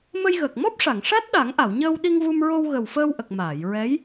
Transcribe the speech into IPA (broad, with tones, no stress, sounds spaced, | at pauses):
m ə˧ j ɣ əː˨˩ k̚ m ɔ˦˥ p̚ ʂ a˨˩˨ ŋ ʂ a˦˥ t̚ ɗ a˨˩˦ ŋ ʔ a˨˩˨ w ɲ əː˧ w ɗ i˧ ŋ v u˧ m ɹ o˧ w ɣ ə˨˩ w f əː˧ w ʔ ə˨˩ k̚ m aː˨˩˨ j ɹ ɛ˧˥ j